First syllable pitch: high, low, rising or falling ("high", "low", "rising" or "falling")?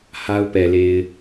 high